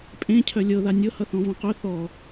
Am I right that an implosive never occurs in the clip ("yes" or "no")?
yes